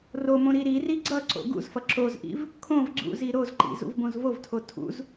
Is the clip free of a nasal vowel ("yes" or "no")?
no